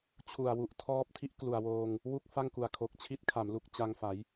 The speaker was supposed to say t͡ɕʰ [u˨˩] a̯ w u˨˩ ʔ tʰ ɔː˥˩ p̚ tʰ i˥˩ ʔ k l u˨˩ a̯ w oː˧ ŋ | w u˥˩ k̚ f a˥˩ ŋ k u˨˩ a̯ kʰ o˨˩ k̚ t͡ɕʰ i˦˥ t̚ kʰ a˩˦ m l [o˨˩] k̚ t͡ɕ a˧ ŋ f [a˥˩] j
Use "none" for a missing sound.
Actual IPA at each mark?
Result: u˨˩, u˨˩, a˩˦

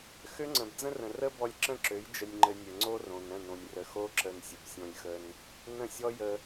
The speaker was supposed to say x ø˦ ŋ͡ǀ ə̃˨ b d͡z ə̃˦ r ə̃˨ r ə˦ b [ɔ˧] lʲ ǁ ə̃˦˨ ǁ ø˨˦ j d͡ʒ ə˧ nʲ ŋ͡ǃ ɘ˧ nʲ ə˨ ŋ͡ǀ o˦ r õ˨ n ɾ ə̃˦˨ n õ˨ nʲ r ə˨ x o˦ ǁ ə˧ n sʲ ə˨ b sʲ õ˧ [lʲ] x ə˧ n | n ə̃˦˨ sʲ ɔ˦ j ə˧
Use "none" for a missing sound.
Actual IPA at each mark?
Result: ɔ˧, lʲ

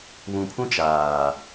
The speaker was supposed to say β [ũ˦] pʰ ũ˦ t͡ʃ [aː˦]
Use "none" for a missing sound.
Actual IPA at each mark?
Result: ũ˨, aː˨

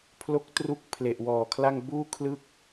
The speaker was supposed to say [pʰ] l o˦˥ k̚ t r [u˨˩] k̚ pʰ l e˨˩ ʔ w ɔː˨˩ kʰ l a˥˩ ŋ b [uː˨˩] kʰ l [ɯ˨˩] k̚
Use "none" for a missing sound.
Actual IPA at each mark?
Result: pʰ, u˦˥, uː˥˩, ɯ˥˩

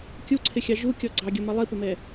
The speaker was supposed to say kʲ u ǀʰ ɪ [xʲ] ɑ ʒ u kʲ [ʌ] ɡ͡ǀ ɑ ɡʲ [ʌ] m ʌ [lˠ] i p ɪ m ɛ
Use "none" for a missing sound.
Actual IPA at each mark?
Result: xʲ, ɔ, ʌ, lˠ

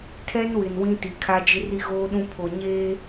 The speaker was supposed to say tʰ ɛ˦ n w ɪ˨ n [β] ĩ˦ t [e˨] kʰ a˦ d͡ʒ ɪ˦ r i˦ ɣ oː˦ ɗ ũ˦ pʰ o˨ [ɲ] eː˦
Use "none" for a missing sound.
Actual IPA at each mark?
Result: w, i˨, ɲ

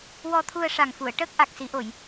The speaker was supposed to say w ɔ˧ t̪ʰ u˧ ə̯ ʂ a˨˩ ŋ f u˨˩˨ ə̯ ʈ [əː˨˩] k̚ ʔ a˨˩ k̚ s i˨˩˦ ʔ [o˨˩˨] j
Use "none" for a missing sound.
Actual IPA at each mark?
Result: əː˦˥, o˨˩˨

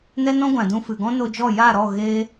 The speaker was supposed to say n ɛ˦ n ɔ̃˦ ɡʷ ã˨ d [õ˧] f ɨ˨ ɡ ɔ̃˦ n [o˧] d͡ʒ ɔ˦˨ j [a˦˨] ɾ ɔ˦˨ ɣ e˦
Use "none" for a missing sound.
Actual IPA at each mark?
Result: ũ˧, o˧, a˦˨

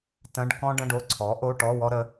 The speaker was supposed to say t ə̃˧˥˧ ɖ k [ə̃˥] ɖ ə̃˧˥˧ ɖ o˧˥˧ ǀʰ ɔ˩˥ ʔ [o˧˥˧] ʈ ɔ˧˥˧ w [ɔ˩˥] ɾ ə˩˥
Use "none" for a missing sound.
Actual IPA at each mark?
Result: ɔ̃˥, o˧˥˧, ɔ˥

